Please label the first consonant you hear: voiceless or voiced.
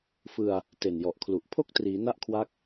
voiceless